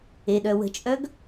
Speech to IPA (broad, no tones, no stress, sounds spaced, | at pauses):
e ɗ œ w ə̤ t͡ʃʼ œ ɡ